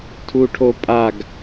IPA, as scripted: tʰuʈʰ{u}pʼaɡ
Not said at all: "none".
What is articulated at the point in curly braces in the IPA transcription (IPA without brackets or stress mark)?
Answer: o